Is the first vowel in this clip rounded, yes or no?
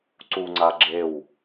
yes